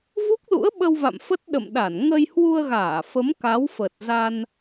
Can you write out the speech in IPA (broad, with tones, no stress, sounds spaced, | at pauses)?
v u˦˥ k̚ l ṵ˧˥ ə̯ ɓ ə˧ w v a̰˧˨ m f ə˦˥ t̚ ɗ ə̰˧˨ m ɗ a˧˩ n ŋ ə˧ j h w u˧ ə̯ ɣ aː˧˩ f ə˨˦ m k a˨˦ w f ə˨˩ t̚ z a˧ n